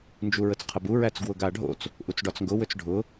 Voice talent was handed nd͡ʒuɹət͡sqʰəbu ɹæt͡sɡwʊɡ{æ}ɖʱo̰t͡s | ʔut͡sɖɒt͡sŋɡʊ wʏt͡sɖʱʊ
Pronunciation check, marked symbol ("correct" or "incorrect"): incorrect